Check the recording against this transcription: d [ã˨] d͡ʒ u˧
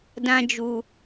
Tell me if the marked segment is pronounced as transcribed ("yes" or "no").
no